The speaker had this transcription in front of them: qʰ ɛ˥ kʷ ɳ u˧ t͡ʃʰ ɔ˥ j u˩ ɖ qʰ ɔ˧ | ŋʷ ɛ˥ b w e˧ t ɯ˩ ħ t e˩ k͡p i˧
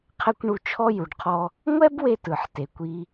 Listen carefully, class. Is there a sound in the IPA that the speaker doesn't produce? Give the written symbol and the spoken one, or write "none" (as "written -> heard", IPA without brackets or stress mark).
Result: k͡p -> kʷ